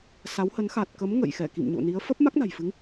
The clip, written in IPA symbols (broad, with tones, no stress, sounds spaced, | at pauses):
s a˨˦ w h ə˨˦ n x a˨˩ t̚ k ə˨˦ m ŋ ə̰˧˨ j x ɛ˧˩ k ḭ˧˨ m ɲ o̰˧˨ n i˨˦ ə̯ f ə˦˥ p̚ m a˦˥ k̚ n a̤˨˩ j f ɨ˨˦ ŋ